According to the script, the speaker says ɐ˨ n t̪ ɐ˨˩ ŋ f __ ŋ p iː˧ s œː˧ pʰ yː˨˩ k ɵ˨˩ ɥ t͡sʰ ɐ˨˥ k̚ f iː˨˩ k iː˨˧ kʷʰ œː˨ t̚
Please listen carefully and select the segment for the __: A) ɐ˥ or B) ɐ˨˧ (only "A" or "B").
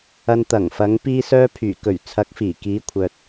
B